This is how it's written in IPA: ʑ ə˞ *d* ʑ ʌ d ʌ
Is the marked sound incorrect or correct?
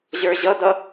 incorrect